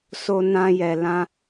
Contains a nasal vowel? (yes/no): yes